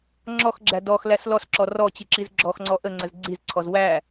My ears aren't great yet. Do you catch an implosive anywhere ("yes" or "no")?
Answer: no